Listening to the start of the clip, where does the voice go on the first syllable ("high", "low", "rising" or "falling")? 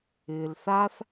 low